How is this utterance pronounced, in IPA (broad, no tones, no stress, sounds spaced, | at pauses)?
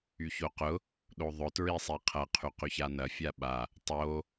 y ç o q ʊ | ɗ o ðˤ ʊ t ɹ i sˤ i qʰ ɐ qʰ y q y ç a n ɐ fʲ a ɓ a | tˤ o